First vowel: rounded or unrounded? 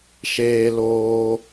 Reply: unrounded